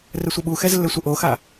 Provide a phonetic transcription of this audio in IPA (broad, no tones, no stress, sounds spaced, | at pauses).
r ɘ sʷ ɘ ɓ u x ɛ z lː ɘ sʷ ə ʔ o x a